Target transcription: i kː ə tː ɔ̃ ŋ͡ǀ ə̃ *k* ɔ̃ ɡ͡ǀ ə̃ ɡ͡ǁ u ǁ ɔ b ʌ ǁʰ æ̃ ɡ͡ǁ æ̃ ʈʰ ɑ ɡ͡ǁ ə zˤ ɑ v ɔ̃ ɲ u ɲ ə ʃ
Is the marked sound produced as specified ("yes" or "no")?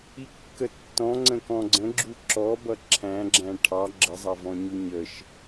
yes